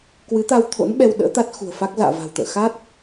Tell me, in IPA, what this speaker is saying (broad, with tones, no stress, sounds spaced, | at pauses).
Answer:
k w ɨ˨˦ t̪ a˧ w t̪ʰ o̰˧˥ n ɓ ɛ˧ w ɗ ə̰ː˧˥ t̪ a˦˥ t̚ x ṳ˨˩ ə̯ f a˦˥ k̚ z a̰ː˧˨ v a̤˨˩ w t̪ ə̰ː˧˨ x a˦˥ t̚